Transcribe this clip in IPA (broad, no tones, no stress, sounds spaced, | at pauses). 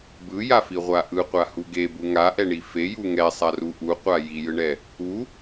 b ɯ j a f i ʁʷ a ʔ ɯ qʷ a h u ɡ e b u ŋ a ʔ ɛ ɳ i f e j u ŋ ɛ sˤ a r u ʔ u qʷ a j i j ɯ ɳ ɛ | u